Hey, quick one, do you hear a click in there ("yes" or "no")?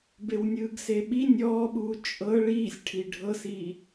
no